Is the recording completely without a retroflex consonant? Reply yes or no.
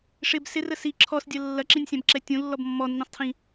no